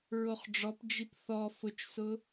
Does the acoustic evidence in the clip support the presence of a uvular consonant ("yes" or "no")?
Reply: yes